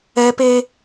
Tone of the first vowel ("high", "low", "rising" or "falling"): high